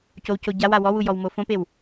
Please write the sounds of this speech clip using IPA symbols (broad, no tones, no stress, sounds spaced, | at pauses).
c o w c o ɟ a w a w ɔ w u j ɔ w m o f õ p e w